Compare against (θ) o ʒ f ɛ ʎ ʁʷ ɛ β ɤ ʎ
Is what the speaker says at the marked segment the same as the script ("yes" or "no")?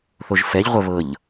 yes